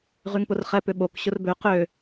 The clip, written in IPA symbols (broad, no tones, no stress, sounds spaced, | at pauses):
ʁ y ŋ p ʊ r χ ɛ p ʏ ɓ o k ɕ ʊ r b ø q ø